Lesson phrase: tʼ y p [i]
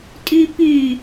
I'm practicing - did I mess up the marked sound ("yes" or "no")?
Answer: yes